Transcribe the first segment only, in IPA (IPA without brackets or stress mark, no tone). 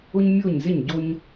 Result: ʊ